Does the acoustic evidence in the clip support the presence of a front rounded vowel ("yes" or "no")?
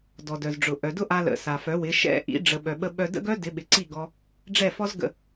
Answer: yes